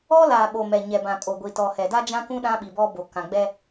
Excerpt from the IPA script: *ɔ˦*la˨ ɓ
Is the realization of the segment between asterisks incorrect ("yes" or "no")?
no